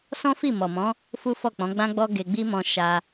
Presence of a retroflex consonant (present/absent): absent